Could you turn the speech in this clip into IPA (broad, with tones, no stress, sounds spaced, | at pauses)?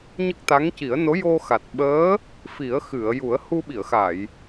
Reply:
ɲ ə˦˥ k̚ t̪ a˧˥ ŋ c i˨˩˦ ə̯ n o˧˥ j o˧ x a˨˩ t̚ ɓ əː˧˥ | f i˨˩˦ ə̯ x ɨ˨˩˨ ə̯ j u˨˩˦ ə̯ h u˧ ɓ i˨˩˨ ə̯ x a˨˩˨ j